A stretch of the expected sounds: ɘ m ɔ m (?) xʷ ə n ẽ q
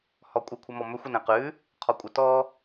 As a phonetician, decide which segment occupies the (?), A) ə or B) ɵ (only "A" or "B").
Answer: B